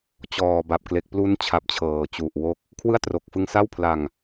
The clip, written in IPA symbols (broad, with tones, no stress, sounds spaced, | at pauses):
t͡ɕ ɔː˨˩ b a˨˩ p̚ k l e˨˩ k̚ p l u˦˥ n t͡ɕʰ a˨˩ p̚ t͡ɕʰ ɤː˨˩ t͡ɕ u˨˩ ʔ w o˦˥ k̚ | kʰ w ɯ˥˩ a̯ t r o˨˩ k̚ f ɯ˧ ŋ s a˥˩ w pʰ l a˨˩ ŋ